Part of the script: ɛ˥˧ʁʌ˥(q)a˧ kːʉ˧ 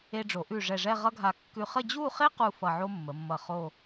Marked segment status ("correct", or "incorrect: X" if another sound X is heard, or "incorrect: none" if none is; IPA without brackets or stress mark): incorrect: ɡʱ